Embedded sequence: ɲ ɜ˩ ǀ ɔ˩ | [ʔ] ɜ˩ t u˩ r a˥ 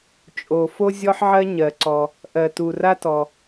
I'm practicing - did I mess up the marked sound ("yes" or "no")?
no